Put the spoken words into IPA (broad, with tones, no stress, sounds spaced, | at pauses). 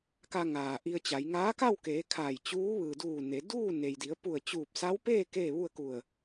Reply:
k a˧ ŋ aː˩ ʔ i˧ ə̯ t͡ɕ a˩˧ j ŋ aː˧˥ k a˥˨ w k eː˩˧ kʰ aː˧˩ j t͡ɕ uː˧˥ ʋ ɯː˩ d uː˧˩ n e˩˧ d uː˥˨ n e˩ j d i˩˧ ə̯ p u˧˩ ə̯ t͡ɕ uː˧˩ p̚ s a˧˥ w p eː˥˨ k eː˥˨ ʋ u˥˨ ə̯ k u˧˩ ə̯